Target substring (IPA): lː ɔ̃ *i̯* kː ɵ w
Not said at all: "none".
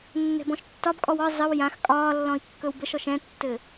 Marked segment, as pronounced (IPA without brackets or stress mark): i̯